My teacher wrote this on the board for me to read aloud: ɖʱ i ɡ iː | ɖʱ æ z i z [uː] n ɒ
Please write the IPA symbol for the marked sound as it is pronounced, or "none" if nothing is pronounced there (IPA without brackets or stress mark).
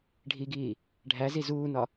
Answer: uː